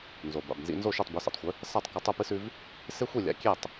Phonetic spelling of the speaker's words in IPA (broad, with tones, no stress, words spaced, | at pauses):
nzo˩ba̰˩bnzḭ˧nzo˥˩ ʃʉ˥˩tˤbʉ˩˥sḭ˩tˤxʷɨ˩˥ | sa˥˩tˤkɐ˧ tˤɵ˥˩pɨ˥sʉ˧v | se˥xʷi˥˩ lʲa̰˩˥kʲe˥˩tˤ